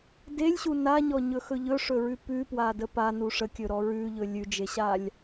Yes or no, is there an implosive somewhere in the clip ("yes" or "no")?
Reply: no